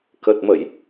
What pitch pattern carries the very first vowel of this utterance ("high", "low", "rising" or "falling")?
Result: low